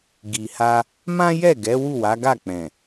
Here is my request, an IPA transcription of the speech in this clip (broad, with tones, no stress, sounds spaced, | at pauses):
ɡ i˨ h a˧ | m ã˦ j ɛ˦˨ ɡ ɛ˨˦ w u˦˨ w a˨˦ ɡ a˦˨ k͡p ɛ̃˨